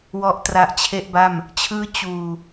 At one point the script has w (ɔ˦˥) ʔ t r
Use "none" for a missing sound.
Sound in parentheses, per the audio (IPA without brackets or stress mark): ɔ˦˥